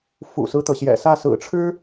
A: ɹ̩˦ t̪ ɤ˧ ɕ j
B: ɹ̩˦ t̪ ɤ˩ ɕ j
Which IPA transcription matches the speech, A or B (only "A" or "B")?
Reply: B